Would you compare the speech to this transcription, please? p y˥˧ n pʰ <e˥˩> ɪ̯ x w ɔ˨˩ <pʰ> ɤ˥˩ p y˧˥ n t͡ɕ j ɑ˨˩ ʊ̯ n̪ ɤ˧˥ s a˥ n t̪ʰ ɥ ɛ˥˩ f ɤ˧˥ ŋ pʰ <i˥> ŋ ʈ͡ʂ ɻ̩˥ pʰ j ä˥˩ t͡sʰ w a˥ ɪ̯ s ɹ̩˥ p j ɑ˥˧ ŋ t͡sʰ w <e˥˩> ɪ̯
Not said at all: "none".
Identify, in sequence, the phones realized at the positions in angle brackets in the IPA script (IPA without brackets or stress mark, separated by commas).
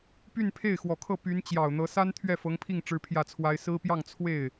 e˥˩, kʰ, i˥˩, e˥˩